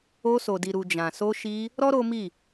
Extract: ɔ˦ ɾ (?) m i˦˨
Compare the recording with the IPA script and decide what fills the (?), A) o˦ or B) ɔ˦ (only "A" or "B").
A